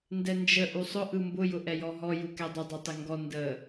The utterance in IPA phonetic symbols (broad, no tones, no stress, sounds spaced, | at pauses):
n d ɛ n d͡ʒ ə ʔ u sˤ ʊ ʔ ɯ m b ʊ j ʊ ʔ ɛ j ɔ ɦ ɔ j u k ɛ dˤ ə dˤ ʊ tˤ ə ŋ ɡ ɔ n d ə